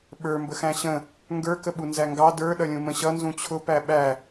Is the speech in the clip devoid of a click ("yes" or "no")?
yes